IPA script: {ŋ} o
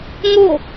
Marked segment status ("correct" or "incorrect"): correct